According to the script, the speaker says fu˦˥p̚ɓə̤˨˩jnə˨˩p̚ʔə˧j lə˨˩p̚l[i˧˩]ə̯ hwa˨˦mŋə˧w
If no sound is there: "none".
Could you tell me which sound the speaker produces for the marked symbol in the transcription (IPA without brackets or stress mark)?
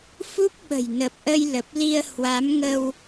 i˧